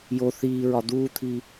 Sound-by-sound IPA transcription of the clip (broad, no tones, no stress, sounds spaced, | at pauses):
j o θ iː ɹ ɒ d̪ uː t̪ʰ iː